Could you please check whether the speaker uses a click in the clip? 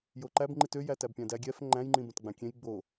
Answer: yes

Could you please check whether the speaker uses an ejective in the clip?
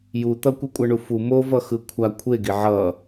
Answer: yes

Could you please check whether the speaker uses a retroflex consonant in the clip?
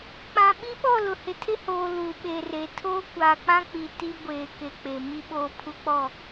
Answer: no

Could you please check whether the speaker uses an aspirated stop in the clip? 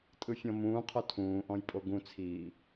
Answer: yes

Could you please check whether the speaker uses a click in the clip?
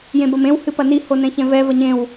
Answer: no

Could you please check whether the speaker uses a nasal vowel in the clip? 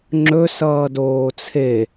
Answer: no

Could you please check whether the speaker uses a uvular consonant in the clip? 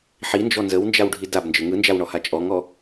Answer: no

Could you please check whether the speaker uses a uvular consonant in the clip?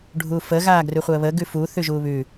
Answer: yes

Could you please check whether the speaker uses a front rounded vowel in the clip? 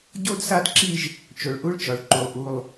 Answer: no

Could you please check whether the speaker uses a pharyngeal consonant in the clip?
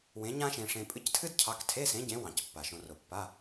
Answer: no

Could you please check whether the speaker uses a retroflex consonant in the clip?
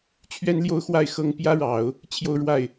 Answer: yes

